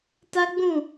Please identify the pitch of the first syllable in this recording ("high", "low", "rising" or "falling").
high